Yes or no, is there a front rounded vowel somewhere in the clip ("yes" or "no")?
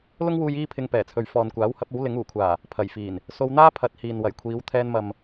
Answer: no